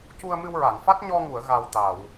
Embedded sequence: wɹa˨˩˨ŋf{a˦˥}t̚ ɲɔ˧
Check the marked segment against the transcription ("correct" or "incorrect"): correct